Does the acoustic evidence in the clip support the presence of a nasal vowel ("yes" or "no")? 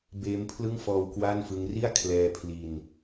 no